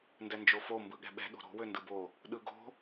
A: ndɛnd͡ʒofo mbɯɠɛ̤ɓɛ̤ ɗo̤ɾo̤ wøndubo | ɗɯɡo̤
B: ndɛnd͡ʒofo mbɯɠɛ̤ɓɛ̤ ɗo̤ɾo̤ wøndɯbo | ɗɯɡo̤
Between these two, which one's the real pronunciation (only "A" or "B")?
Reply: B